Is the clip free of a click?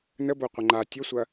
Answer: no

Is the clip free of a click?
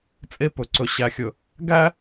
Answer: no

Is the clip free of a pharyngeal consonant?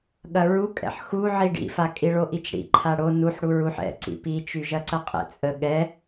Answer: no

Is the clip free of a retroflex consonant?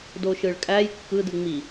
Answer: no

